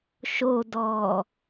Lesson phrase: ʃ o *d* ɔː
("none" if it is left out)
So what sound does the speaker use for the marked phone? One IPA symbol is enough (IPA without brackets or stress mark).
d